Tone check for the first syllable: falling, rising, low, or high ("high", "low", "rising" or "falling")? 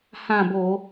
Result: falling